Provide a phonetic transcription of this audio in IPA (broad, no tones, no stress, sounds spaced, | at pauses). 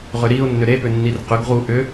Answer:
ʁ ʏ ɾ i ʊ̯ nː ʏ ɾ e p ʏ nː i r q ʏ ɡ ʁ u ʔ ʏ